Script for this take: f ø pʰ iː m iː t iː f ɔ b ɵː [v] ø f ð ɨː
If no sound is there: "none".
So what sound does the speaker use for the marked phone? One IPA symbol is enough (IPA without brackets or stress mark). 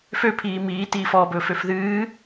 f